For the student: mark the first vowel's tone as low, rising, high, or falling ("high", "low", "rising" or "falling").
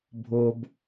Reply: high